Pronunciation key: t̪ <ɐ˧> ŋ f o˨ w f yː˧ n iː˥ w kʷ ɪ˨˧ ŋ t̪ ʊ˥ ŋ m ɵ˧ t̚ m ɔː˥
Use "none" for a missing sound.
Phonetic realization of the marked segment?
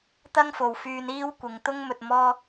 ɐ˥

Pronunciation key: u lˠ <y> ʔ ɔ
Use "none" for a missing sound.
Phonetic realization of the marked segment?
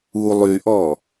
y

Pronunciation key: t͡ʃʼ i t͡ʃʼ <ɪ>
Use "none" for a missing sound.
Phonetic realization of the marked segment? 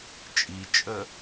ə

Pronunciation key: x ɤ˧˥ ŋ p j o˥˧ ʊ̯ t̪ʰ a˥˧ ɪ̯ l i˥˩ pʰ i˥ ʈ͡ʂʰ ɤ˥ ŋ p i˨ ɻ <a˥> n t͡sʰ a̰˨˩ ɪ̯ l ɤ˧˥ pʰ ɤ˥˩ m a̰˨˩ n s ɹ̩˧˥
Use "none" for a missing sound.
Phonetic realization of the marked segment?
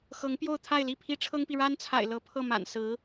a˥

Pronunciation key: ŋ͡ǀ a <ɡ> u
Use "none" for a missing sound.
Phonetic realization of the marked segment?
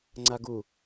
ɡ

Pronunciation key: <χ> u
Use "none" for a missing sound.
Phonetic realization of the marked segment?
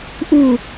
ʔ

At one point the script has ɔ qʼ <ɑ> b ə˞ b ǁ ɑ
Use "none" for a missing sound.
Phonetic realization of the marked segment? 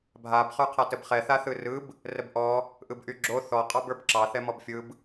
ɑ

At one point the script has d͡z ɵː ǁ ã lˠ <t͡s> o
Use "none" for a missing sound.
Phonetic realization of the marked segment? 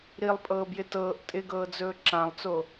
t͡s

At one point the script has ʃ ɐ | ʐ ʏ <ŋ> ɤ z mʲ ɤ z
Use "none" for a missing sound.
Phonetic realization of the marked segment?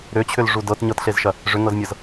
ŋ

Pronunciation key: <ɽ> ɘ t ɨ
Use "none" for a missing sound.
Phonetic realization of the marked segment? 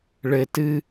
ɭ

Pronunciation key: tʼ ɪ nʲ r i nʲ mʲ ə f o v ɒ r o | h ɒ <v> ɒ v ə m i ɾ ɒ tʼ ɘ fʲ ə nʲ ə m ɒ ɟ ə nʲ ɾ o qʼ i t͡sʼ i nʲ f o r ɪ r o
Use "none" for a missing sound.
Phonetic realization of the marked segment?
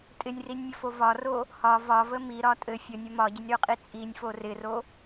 v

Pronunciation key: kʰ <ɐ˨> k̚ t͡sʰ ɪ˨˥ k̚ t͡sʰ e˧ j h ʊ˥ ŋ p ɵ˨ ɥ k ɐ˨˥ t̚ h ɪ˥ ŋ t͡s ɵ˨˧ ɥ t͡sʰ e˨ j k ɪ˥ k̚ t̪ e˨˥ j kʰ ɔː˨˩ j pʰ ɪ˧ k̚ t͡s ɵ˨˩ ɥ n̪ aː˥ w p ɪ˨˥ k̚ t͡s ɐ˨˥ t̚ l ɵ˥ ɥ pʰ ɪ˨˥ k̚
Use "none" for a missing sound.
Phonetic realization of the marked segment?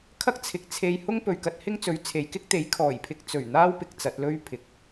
ɐ˥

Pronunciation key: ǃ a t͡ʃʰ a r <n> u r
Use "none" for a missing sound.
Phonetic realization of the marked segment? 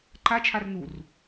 n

